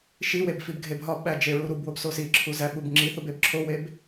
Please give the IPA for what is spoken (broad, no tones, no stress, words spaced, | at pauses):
ʃiweb fibɡʱebɦɒbɓæ d͡ʒeɹuɾubwob sosiǁʰu zæɓubŋ͡ǁiθub ebǁʰoweb